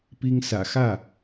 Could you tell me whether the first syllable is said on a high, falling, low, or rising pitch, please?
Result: high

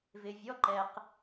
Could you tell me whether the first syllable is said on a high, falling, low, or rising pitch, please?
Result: low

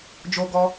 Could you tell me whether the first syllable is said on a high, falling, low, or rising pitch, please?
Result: high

